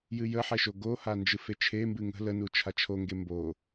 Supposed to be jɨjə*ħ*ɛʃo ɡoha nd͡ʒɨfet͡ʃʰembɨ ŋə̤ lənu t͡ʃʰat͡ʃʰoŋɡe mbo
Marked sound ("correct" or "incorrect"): correct